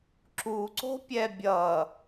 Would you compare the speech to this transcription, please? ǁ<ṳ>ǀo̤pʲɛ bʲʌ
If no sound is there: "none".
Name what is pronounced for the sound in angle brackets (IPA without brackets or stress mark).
u